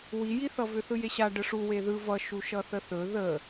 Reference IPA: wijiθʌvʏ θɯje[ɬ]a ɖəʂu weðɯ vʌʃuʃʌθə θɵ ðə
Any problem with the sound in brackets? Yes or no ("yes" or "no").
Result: yes